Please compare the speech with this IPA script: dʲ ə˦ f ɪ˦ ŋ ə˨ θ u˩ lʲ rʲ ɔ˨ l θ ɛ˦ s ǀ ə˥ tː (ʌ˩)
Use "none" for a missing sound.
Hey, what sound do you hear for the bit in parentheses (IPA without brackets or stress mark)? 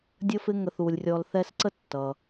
ʌ˩